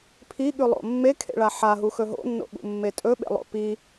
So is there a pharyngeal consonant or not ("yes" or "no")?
yes